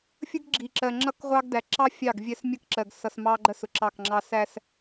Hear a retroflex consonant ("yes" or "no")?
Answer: no